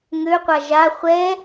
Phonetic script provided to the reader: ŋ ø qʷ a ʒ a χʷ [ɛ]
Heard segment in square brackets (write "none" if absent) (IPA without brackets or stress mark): ɛ